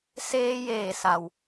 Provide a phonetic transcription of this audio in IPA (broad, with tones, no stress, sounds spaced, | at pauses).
s eː˧ j eː˧˩ s a˩ w